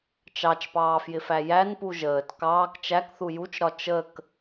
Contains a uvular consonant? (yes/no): no